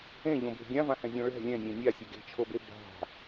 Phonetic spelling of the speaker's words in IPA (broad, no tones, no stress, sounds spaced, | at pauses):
ẽ ʎ õ b e̤ ɡʲ ã v ã h ɛ̃ zʲ õ ɭ ɛ̤ lʲ ɛ̃ nʲ ẽ nʲ a sʲ ɛ ɡ e̤ t͡ʃʰ o b e b a̤